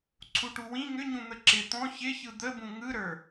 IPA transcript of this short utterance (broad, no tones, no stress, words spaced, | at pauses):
ǀʰuʈuwĩ ŋʏ ɲũn̪əǁɪ t̪ɔ̃ çɪçɯ d̪əbũ ŋɯɾə˞